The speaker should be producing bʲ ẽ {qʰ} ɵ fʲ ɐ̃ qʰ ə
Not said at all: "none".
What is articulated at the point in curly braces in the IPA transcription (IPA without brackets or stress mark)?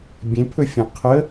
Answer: pʰ